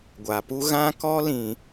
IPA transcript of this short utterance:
ɡʷa˨ pu˦ ɣã˦kɔ˦lĩ˨

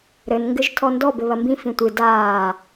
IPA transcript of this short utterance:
ɾɘnŋɡɘʒ tʰɔndɔ bɘβɐmbĩ fĩtʷɨ daː

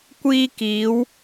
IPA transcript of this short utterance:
kʷiː˧ kiː˨˧w

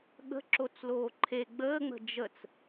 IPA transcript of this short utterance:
ɠə̤ǁot͡sloː ǃʰe ɡ͡bəːŋ͡mə̤ d͡ʒət͡s

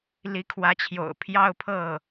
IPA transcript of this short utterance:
li˧˥kʰwä˧˥t͡ɕʰjo̰˨˩ʊ̯ pʰjɑ˥˧ʊ̯pʰɤ˥˩

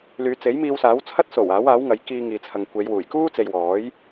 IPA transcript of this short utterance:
lyː˨˧t͡se˨˥j miː˧wsaː˨˥wt͡sʰɐ˥t̚ so˨˩w aː˨˥waː˨˥w ŋɐ˨˥jkiː˧ŋiː˨t͡sʰɐ˨ŋ kʷe˨˧j wuː˨˩jkuː˥t͡se˨j wɔː˨˥j

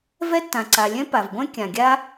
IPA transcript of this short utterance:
vɛ˥tːã˩ǀa˩lʲɛ̃˥ pa˩v ɡʷɛ̃˥ kʲã˩ɡʲa˥

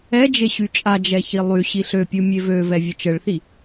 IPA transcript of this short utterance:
ɛd͡ʒe ɕyt͡ʃʼad͡ʒɛ çilˠyɕi ɬøpʲu mʲevøvɛ vʲət͡ʃəɭθi

